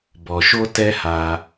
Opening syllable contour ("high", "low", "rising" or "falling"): low